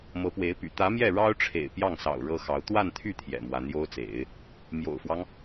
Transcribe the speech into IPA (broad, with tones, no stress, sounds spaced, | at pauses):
m ɤ˧˥ p w e˧˥ ɪ̯ p y̰˨˩ t̪ ä˧˥ m j ɛ˥˩ ɻ ɑ˥ ʊ̯ ʈ͡ʂʰ ḛ˨˩ ɪ̯ p j ɑ˥˩ ŋ s ɑ̰˨˩ ʊ̯ ɻ ɤ˥ x ɑ˧˥ ʊ̯ t̪ w a˥˧ n t̪ʰ y˥˩ t̪ʰ j ɛ̰˨˩ m w a˧˥ n j o˥ ʊ̯ t͡s ḛ˨˩˦ ɪ̯ | m j o̰˨˩ ʊ̯ f w ɑ˦ ŋ